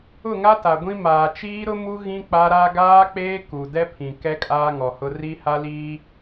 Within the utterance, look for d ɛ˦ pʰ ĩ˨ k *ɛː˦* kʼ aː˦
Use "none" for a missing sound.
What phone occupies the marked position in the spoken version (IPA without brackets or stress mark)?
ɛ˦